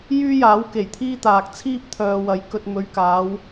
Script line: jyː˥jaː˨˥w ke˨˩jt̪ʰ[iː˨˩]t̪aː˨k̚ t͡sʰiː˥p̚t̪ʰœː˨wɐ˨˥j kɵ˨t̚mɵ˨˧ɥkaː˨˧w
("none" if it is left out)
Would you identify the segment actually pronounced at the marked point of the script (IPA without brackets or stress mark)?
iː˥